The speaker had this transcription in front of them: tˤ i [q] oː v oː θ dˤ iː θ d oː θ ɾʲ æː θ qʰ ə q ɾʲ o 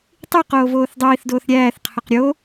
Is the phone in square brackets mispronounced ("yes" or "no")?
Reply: no